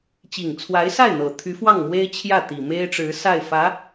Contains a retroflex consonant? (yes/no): yes